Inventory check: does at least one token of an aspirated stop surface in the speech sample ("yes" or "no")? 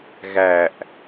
no